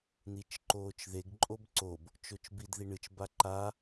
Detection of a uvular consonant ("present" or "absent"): absent